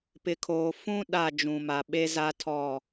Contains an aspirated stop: yes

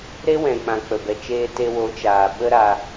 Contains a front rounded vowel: no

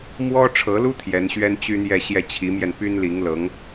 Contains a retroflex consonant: yes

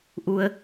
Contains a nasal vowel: no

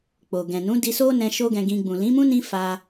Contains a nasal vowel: yes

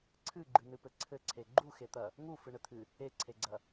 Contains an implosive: no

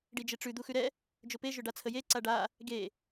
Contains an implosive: no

